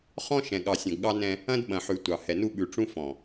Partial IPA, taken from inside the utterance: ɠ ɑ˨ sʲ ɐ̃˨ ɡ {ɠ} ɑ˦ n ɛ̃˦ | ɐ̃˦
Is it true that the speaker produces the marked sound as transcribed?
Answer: yes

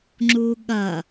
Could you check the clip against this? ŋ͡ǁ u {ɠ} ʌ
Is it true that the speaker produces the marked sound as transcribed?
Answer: yes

